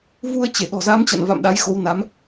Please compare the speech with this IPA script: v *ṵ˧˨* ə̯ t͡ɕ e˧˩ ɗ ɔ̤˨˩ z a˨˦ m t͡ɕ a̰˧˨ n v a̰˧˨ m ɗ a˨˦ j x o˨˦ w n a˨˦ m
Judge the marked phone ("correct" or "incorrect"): incorrect